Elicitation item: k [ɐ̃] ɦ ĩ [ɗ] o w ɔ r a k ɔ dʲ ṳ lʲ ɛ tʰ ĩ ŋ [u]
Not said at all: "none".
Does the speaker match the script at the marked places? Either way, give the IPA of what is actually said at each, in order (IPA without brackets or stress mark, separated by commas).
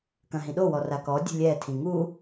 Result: ɐ̃, ɗ, u